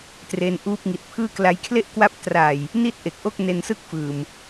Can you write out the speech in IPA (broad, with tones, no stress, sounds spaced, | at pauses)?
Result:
t r e˧ n ʔ uː˦˥ p̚ ŋ i˨˩ t̚ pʰ ɯː˥˩ k l a˦˥ j kʰ l e˥˩ ʔ k w a˦˥ p̚ t r a˨˩ j | n i˥˩ t̚ ʔ e˨˩ k̚ ʔ o˥˩ k̚ n e˧ n s ɯ˥˩ k̚ f ɯː˨˩ m